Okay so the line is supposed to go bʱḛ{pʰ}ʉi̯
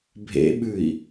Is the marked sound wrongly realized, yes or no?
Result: yes